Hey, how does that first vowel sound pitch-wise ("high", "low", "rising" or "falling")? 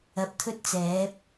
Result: rising